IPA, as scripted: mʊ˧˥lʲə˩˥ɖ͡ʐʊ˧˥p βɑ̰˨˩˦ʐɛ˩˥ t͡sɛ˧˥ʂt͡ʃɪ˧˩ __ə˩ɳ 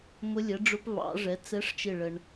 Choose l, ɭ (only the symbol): ɭ